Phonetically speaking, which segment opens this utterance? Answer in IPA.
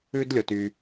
ʉ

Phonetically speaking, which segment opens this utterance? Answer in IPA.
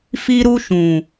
f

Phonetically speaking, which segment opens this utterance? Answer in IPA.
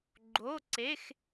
ɡ͡ǃ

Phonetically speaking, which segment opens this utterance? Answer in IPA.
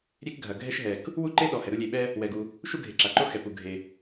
ɾʲ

